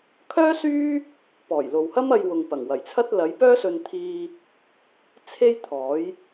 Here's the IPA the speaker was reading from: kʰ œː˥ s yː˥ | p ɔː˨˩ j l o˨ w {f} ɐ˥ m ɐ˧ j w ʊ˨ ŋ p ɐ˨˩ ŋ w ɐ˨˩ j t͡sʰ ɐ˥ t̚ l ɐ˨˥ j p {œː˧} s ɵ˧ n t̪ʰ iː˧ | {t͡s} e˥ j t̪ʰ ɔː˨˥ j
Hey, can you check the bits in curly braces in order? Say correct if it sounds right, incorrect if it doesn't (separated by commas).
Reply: incorrect, incorrect, incorrect